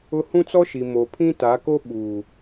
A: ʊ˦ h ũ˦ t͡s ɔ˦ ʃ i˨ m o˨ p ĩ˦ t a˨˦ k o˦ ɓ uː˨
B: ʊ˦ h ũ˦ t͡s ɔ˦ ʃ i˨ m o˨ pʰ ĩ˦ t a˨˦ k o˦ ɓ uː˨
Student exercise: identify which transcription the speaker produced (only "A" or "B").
B